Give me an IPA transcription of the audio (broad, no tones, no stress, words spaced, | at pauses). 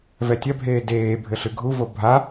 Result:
vɛtʲɐbʱeː deːbʱɘ ɬɨɡʱuvo bʱa